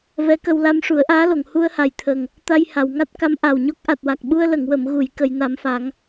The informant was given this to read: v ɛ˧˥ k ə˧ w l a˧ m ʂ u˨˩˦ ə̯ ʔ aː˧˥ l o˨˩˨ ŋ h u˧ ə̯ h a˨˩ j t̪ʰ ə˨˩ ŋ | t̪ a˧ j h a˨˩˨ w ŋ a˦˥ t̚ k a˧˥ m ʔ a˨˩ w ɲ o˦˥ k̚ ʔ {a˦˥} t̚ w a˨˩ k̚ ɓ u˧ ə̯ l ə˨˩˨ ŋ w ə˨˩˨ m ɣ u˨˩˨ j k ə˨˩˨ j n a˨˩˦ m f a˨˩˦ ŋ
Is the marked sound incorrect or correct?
incorrect